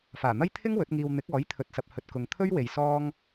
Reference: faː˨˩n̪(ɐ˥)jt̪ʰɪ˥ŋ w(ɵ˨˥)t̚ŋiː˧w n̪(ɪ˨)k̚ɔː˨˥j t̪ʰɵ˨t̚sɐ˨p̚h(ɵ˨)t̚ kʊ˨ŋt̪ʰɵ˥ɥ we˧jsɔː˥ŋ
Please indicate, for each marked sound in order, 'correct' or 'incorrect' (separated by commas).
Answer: correct, correct, incorrect, correct